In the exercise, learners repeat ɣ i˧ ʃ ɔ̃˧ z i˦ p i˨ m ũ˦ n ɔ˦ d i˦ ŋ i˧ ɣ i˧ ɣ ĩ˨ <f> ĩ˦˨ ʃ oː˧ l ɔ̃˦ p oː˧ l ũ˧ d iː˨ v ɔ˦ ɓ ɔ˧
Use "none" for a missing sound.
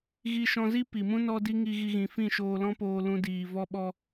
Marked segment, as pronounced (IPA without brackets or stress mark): f